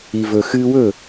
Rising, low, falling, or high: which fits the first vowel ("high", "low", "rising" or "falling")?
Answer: low